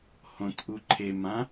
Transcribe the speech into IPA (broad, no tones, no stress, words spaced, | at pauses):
hõt ʔuǃʰemã